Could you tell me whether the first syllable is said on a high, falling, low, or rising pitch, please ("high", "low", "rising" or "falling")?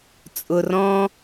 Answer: low